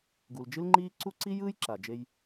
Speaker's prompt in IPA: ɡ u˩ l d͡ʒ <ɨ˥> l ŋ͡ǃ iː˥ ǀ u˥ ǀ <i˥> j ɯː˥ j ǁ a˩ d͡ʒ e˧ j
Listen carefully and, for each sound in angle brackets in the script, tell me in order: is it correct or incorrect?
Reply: correct, correct

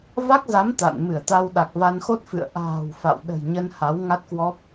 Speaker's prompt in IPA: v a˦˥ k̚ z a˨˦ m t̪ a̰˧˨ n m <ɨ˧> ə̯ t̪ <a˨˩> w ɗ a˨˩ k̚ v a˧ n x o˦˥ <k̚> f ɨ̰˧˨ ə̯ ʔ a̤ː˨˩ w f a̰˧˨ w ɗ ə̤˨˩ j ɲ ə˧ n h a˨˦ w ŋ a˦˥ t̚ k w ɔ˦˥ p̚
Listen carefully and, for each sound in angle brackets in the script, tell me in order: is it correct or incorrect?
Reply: incorrect: ɨ˧˩, incorrect: a˧, incorrect: t̚

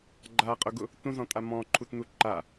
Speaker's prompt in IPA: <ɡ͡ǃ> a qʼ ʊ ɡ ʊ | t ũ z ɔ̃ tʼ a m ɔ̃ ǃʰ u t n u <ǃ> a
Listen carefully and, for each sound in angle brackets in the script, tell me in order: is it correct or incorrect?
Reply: correct, correct

